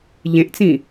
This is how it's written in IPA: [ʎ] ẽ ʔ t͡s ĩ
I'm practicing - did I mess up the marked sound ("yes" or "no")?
no